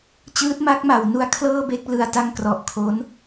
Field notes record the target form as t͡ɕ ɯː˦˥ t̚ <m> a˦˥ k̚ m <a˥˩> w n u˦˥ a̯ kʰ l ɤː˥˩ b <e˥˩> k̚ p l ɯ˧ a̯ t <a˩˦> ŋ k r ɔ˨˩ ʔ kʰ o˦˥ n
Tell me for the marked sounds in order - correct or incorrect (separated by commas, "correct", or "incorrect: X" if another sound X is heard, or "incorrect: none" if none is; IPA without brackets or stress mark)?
correct, incorrect: a˩˦, correct, incorrect: a˧